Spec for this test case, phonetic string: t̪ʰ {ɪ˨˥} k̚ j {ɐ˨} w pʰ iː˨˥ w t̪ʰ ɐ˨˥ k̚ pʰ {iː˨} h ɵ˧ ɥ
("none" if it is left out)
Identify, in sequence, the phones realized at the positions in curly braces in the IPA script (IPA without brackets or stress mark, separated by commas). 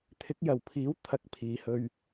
ɪ˨˥, ɐ˨, iː˨